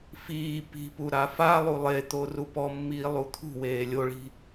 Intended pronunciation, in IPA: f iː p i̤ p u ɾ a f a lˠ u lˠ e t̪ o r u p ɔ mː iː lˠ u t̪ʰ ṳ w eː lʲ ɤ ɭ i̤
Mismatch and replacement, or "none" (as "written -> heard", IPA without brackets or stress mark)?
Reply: ɤ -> o